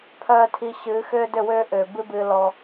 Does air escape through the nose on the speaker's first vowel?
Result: no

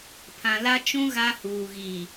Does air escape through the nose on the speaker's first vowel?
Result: yes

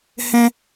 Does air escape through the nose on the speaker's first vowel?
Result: yes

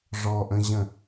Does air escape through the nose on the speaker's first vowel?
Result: no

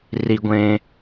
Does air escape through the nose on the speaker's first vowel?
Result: no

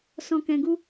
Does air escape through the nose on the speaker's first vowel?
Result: yes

